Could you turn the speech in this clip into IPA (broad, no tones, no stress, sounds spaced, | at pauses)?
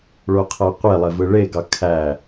ɭ o qʰ æ qʷ e lˠ e v ɯ ɭ e ɡ ɑ kʰ æ